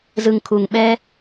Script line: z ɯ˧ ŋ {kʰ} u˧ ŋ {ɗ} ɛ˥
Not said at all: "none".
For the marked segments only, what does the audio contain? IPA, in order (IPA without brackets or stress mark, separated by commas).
kʰ, ɓ